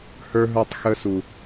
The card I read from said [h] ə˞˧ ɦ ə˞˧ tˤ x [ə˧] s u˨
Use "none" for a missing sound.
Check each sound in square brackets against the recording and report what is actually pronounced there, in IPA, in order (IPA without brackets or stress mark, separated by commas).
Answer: h, ə˧